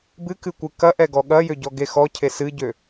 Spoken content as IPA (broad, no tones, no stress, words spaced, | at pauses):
bɨkɨkʷɨ kɐʔɛɡɔ ɠɐjøɟɔɡe xɔcʰe sɨɟø